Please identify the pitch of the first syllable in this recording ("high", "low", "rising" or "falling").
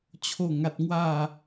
falling